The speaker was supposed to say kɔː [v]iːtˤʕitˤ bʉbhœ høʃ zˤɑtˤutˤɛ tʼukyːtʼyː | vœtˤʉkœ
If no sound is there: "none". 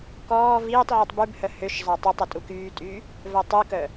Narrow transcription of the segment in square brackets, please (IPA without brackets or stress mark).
v